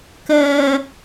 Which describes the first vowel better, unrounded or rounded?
unrounded